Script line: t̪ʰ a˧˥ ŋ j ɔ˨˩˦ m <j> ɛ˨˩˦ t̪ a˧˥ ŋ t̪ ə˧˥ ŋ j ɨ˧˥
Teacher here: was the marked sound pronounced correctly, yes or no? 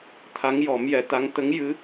yes